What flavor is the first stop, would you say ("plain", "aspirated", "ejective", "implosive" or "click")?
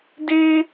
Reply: plain